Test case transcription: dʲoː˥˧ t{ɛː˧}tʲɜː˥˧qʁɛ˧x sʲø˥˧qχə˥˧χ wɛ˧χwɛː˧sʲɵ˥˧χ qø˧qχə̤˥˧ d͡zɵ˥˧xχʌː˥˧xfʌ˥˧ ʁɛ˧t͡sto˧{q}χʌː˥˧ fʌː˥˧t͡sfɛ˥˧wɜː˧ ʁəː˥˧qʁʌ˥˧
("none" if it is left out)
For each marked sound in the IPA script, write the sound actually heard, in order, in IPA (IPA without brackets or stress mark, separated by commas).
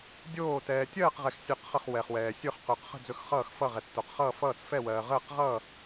ɛː˧, q